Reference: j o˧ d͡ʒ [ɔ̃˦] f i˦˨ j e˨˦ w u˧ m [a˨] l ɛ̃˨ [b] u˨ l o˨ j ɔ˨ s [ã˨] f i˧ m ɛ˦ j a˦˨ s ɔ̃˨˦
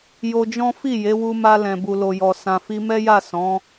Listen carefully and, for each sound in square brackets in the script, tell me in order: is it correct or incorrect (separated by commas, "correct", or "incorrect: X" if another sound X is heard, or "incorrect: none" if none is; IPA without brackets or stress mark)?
correct, incorrect: a˧, correct, correct